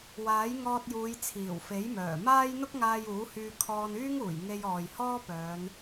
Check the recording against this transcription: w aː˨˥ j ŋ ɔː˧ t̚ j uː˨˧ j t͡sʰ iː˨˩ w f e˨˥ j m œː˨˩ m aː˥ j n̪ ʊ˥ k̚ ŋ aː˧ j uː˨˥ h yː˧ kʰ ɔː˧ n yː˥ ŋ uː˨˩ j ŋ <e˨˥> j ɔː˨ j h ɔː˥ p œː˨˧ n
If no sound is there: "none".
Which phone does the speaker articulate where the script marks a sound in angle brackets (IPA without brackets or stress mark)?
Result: e˧